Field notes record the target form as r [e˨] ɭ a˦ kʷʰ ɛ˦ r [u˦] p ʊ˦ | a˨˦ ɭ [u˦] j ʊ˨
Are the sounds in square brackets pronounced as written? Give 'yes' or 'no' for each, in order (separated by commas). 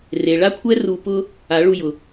yes, no, no